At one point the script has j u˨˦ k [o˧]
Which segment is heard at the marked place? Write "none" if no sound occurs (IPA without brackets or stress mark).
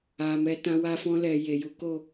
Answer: o˦˨